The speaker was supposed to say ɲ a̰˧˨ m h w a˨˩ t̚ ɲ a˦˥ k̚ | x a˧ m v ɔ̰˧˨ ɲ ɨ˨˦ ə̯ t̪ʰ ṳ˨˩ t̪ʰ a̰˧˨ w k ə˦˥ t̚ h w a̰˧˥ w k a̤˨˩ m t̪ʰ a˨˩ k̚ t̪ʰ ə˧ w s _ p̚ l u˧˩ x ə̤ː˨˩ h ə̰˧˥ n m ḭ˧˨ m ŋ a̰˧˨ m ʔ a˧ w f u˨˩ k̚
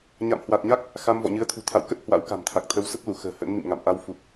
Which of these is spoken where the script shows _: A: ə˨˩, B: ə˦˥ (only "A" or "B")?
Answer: B